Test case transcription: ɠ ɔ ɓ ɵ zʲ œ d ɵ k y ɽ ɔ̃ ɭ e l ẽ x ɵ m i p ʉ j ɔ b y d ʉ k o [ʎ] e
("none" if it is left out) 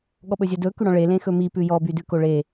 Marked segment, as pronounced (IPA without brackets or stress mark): ɭ